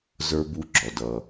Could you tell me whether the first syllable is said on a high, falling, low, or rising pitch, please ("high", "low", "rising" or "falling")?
high